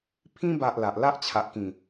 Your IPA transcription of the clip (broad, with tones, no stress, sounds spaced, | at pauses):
pʰ ĩ˧ b a˨ ʔ l a˨ ʔ l a˦ ʔ t͡ɕʰ a˨ ʔ k ĩ˨˩